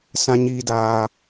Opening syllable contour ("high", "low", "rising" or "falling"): high